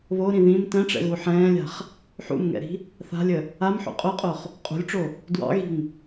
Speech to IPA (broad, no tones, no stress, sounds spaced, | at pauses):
β o ɾ ĩ ð ĩ m t ɛ̃ ʈ͡ʂ ɛ̰ ɣ u ħ ɛ̃ː lʲ a̤ χ | ħ ṵ m ŋ ɛ̰ ɾ i̤ | θ a̤ lʲ ə | a m ħ ṵ qʼ o qʼ o χ | qʼ ṳ lʲ ʈ͡ʂ o | d w ɑ̰ ɣ i̤ ŋ